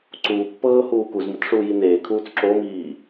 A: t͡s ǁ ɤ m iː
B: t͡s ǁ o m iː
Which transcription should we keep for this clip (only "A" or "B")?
B